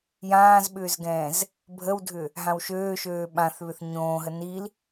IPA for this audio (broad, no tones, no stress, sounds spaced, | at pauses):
j ãː z ɓ ʏː z ɡ ɛ̃ː z | bʱ ə w dʱ ʏ | ɦ ã w ʃ øː ʃ øː ɓ ã θ β ʏ θ ɲ õː ɦ ə n i l